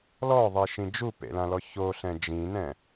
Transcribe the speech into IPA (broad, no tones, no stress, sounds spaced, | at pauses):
l ɔ ðˤ i ʃ ĩ d͡ʒ u p ḛ l ã l ɔ ç o ɬ ɛ̃ d͡ʒ ĩ n ɛ̃